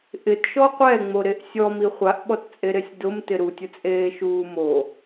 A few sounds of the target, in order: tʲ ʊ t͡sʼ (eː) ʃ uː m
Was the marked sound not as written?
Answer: no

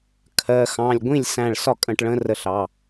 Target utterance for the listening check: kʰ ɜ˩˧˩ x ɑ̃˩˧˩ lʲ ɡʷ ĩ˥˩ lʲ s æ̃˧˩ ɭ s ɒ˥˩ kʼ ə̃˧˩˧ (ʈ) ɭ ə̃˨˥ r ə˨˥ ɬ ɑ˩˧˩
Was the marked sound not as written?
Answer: no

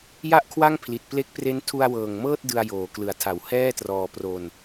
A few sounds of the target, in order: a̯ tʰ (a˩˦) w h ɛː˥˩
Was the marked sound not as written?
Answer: no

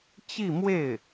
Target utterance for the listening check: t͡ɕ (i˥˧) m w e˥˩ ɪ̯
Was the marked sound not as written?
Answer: no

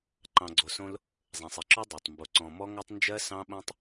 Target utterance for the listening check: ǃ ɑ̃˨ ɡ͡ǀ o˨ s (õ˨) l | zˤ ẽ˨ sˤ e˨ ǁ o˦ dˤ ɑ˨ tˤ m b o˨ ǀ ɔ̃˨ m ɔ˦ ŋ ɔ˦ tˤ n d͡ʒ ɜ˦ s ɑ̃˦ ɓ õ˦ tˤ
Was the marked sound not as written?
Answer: yes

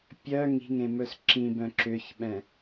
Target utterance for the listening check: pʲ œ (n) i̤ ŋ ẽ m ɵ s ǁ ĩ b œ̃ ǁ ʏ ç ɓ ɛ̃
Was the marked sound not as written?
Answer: yes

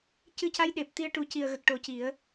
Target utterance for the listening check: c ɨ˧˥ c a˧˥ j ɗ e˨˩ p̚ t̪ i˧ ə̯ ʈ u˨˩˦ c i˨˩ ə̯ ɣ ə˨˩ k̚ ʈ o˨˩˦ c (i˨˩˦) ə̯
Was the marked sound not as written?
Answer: no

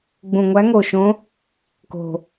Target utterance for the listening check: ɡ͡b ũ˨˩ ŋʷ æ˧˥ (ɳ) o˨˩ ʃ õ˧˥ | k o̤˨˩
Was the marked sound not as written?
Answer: yes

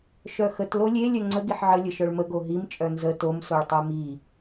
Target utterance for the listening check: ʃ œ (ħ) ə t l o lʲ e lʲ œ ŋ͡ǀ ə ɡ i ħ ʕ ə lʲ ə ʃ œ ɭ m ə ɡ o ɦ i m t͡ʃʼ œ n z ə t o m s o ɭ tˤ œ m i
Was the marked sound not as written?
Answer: yes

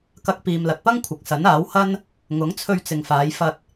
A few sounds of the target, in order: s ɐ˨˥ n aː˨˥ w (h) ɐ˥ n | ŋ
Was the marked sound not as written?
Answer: no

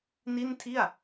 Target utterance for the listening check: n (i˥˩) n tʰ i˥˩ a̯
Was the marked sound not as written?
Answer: no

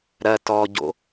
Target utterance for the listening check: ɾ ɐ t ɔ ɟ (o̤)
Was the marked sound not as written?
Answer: yes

